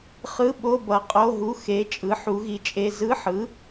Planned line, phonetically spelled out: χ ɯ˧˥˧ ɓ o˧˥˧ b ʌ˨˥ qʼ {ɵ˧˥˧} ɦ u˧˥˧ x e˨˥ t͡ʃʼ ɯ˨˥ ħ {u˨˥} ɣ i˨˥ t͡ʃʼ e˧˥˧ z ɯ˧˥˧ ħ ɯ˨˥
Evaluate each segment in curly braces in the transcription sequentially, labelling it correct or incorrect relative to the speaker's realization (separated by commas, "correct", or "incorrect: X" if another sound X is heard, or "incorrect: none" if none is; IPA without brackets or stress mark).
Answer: incorrect: o˧˥˧, correct